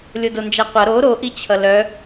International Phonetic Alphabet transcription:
lʲ o d o n d͡ʒ æ qʷ ʌ ɾ o ɾ o ʔ i t͡ɕʰ ʌ l œ

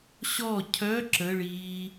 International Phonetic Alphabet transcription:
ɕ ɔ cʰ œ ǁ ə ɭ iː

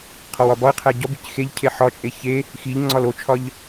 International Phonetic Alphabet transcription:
qʰ ɒ w ɒ b ɒ ə̯ qʰ æ ɟ ɒ b i c x e ʎ cʰ e ħ ɒ t͡ʃʼ e ç e | x i ʎ ŋ͡ǀ ɒ l o t͡ʃʰ ɒ ʎ

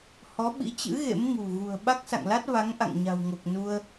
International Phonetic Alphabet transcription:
h ɔ˨˦ ɓ ḭ˧˥ t͡ɕ ɨ̰˧˥ ɣ ḛ˧˥ m ŋ ṳ˨˩ ɣ ṳ˨˩ ə̯ ɓ a˦˥ k̚ s a̰˧˨ ŋ l a˦˥ t̚ v a˨˦ ŋ ʔ a̰˧˨ ŋ ɲ a̤˨˩ w ŋ o˨˩ k̚ n u˧ ə̯

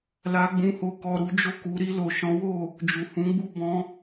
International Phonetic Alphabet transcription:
l a˧ ɡ͡b ũ˧ h o˧ k ɔ˧ ɾ u˧ d͡ʒ o˦ k u˧ ɾ i˧ l o˨ ʃ ɔ̃˨˦ w o˦˨ | d͡ʒ u˨ h ũ˨˦ ɡ͡b u˦˨ b ɔ̃˧

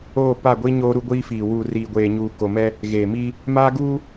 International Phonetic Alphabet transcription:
oː˦˨ p a˦˨ ɡʷ i˦ ɲ oː˦ ɾ u˦ ɡʷ iː˦ f iː˨ w uː˨ r iː˨ ɡʷ eː˨ ɲ uː˨ k o˨ m ɛ˦ | ɣ eː˨ m iː˦ | m aː˦ ɡ uː˦

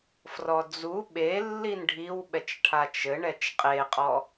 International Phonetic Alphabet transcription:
f r ɔ d͡z u ɓ e lː i n ɖʱ i w ɓ ɛ t͡ʃ ʈʰ a t͡ʃ ɘ ɳ ɛ t͡ʃ qʼ e qʼ ɔ

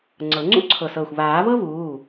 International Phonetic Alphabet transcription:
ŋ͡ǀ ɤ˨˩˦ ŋ͡ǀ ṵ˥ ǀʰ ɤ˧˩ s ɤː˧˩ xʷ β aː˨˩˦ β ɤ˥ β uː˩˧˩

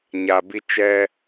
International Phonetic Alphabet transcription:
ɲ a˨ b i˧ t͡ʃ ɛ˧

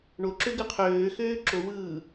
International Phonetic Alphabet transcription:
ɳ o ǁ ø ɡ ɯ qʰ øː x øː ǁ o w ɯː

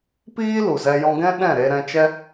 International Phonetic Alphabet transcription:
p iː˦ l u˨ z ɛ˧ j ɔ̃˧ ɡ ɛ̃˦ ɗ ɛ̃˦˨ ɾ e˧ ɾ ɛ̃˧ t͡ʃ ɛ˦

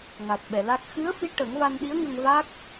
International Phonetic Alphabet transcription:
ŋ a˨˩ t̚ ɓ ɛ˨˩˨ l a˦˥ k̚ x ɨ˧˥ ə̯ f i˧˥ ʈ ə˨˩˦ ŋ v a˧ n ɗ i˧˥ ə̯ ŋ ə˧ ŋ v a˦˥ k̚

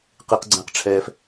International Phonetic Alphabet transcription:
q i˩ q ɡ͡ǀ ɛ̃˩ q ʈ͡ʂʰ ɛː˩ f

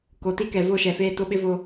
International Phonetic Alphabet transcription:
k o˨ t i˦ k ɛ˨ v o˦˨ ʃ ɛ˨ f eː˦˨ t o˦ ɓ ɪ˦ v o˦

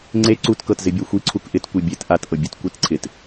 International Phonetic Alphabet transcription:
ŋ͡ǀ e ǀ u t k ɤ t z ɪ bʲ a xʷ i ǀʰ u k ʔ ɪ t kʷ i bʲ e t ʔ a t ʔ ɤ bʲ u t kʷ i t ǀʰ ɪ t

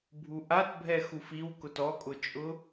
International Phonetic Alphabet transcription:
bʱ u ʔ a t bʱ ɛ x u f i w k ʊ t ɔ kʼ ʊ t͡ʃʼ ʊ

